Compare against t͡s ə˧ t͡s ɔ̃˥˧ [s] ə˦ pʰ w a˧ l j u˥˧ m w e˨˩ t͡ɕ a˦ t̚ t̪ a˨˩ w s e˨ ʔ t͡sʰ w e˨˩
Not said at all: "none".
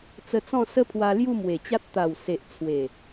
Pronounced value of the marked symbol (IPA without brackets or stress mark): s